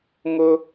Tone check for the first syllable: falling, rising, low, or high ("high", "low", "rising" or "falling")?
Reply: high